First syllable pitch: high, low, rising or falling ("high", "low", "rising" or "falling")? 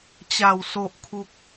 low